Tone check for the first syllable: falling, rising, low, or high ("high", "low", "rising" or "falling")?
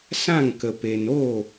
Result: falling